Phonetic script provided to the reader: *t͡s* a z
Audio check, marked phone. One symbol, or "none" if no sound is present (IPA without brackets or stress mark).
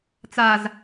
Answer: t͡s